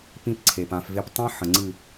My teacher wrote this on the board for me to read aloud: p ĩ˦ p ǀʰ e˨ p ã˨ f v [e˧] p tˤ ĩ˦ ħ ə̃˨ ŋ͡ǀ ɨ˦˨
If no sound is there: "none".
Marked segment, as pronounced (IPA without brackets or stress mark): e˧